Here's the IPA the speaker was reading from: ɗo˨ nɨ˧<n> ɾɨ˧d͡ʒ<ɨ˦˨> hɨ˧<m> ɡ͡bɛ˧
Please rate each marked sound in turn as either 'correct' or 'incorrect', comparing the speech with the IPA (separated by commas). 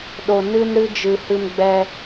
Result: correct, incorrect, correct